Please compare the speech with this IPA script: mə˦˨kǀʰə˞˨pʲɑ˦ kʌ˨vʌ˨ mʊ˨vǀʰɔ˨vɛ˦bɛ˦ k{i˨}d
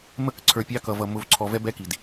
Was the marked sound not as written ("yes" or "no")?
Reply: no